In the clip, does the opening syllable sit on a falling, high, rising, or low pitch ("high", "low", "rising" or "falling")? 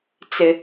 low